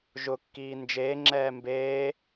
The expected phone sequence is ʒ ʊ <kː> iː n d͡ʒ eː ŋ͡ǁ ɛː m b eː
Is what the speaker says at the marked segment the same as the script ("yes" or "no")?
yes